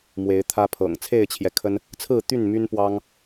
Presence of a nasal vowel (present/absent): absent